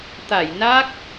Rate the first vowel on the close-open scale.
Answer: open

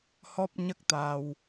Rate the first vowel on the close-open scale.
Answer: mid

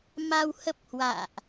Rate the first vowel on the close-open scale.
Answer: open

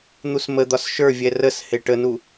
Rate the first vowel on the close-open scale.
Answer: close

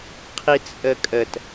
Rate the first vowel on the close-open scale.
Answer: close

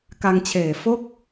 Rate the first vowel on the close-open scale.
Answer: open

